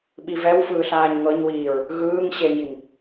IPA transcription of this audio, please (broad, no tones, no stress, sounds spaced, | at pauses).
ɓ i v ɛ w f ɯː ɬ aː ɲ ŋ ɤ ɲ w iː ɹ | ɣ ɯː ŋ ɕ e ŋ i ŋ